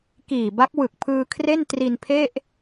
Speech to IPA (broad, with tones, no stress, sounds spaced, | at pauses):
k iː˨˩ b a˦˥ k̚ w ɯ˨˩ k̚ pʰ ɯː˧ kʰ r e˥˩ n t r i˧ n pʰ e˥˩ ʔ